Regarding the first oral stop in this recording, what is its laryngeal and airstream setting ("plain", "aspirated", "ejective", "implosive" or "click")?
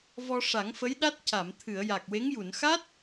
implosive